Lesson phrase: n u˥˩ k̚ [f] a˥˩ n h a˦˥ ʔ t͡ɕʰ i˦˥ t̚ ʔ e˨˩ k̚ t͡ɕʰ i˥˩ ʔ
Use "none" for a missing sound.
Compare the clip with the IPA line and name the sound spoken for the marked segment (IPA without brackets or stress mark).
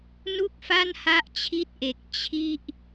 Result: f